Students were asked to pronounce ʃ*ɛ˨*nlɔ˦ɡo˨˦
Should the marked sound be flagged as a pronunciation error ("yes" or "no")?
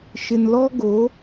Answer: yes